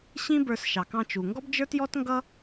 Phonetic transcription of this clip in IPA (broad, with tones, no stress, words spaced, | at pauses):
ɕĩ˥bə˞˧s ʃɑ˩kɑ̃˧t͡ʃu˩ ŋɡɔ˥bd͡ʒə˞˥tjɔ˥tŋɡʌ˥